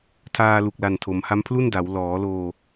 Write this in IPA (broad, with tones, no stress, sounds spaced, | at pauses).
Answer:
tʰ aː˧ l u˨˩ k̚ l a˨˩ n tʰ o˩˦ m h a˦˥ m pʰ l u˥˩ n d a˩˦ w l ɔː˩˦ l oː˧